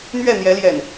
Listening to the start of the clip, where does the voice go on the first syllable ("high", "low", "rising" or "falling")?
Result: falling